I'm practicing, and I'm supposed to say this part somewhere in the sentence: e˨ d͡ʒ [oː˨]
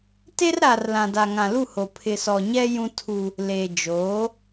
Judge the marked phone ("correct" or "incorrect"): incorrect